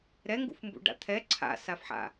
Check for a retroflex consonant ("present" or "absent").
present